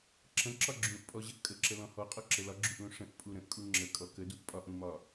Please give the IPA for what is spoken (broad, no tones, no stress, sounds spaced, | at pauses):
ǁ ə̃ ǁ ɒ ɡ͡ǁ ũ ʔ pʼ ɔ ʑ ə ʔ kʼ ə ǁ ə l ɔ̃ h ɔ qʼ ɔ ǁ ə l ɒ ɡ͡ǁ u ʔ l ũ ʂ ə̃ ʔ pʼ u ɾ ə̃ ʔ kʼ u ŋ͡ǁ ə kʼ ɔ k ə d u ʔ pʼ ɒ ʔ ũ m ɒ